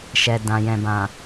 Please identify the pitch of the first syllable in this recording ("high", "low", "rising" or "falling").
low